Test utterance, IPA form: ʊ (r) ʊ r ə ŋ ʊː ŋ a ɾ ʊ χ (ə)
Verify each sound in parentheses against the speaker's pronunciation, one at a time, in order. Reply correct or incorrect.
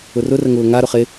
correct, incorrect: ɪ

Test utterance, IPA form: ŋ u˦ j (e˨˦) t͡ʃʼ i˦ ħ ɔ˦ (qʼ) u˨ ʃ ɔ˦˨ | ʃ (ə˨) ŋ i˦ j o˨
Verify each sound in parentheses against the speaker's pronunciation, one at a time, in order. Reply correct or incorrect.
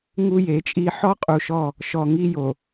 correct, correct, incorrect: ɔ˨

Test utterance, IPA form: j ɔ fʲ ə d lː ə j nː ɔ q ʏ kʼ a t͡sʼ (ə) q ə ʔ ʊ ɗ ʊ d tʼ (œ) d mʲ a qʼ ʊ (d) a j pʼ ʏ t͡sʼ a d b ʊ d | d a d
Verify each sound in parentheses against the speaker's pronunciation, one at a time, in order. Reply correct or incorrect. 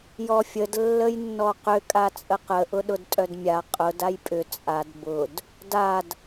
correct, correct, correct

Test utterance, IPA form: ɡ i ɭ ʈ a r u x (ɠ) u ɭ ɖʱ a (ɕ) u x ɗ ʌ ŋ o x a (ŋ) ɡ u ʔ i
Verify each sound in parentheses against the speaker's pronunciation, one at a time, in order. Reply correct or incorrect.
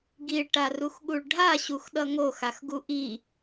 correct, correct, incorrect: x

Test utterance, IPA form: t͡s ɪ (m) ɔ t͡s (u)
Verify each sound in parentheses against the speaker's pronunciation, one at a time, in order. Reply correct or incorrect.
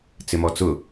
correct, incorrect: ʊ

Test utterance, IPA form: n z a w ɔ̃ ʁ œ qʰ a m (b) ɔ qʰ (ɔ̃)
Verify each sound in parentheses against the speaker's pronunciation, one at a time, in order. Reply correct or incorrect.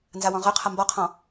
correct, correct

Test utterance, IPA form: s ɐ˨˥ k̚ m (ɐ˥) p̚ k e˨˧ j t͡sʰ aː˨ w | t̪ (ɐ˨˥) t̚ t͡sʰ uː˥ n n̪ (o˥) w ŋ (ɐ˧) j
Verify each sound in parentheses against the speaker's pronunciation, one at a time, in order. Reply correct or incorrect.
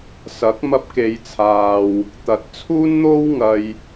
incorrect: ɐ˧, correct, correct, correct

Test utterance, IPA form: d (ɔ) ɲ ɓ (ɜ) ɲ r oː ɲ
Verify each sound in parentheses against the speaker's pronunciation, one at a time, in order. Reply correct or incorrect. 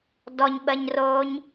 correct, correct

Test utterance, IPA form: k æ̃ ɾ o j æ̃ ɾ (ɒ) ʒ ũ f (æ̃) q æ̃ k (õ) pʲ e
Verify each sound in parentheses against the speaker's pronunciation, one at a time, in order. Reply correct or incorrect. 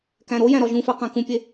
correct, incorrect: æ, incorrect: ũ

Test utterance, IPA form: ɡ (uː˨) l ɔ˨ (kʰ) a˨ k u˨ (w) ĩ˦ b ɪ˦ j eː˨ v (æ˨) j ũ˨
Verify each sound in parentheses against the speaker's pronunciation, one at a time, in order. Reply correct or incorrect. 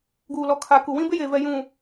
correct, correct, correct, incorrect: ɛ˨

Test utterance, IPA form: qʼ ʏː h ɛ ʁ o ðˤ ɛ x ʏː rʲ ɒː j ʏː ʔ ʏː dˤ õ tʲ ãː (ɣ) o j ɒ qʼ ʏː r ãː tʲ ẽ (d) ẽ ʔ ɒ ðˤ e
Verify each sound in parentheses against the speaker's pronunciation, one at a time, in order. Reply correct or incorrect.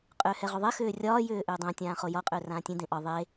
incorrect: χ, correct

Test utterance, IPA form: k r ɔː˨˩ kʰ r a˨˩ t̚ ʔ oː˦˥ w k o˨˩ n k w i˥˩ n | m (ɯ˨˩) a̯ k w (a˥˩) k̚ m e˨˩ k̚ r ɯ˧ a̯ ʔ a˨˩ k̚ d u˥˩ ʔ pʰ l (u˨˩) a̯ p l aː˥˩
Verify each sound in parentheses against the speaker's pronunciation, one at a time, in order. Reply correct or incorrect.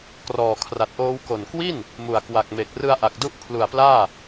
incorrect: u˨˩, incorrect: a˨˩, correct

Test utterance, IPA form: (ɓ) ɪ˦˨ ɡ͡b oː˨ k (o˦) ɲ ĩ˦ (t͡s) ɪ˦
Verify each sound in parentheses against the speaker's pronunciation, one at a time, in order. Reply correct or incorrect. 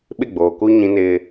correct, incorrect: u˦, incorrect: n

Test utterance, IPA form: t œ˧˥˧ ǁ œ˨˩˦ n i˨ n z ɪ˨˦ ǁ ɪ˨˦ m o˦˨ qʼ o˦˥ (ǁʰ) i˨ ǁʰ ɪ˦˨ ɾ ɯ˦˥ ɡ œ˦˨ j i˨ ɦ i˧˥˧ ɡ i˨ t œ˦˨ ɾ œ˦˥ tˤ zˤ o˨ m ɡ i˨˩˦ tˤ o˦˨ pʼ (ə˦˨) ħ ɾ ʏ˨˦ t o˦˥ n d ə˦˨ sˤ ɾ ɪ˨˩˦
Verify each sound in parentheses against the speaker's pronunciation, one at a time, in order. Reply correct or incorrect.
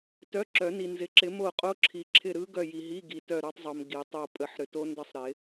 correct, correct

